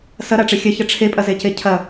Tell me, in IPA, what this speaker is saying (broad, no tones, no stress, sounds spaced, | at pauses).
s ɐ ɾ a ʈ͡ʂ e xʲ ɐ ç ɐ ʈ͡ʂʰ e pʼ ɐ z e c e cʰ ɐ